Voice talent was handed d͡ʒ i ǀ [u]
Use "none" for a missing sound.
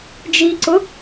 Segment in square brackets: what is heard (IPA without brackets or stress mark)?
ʊ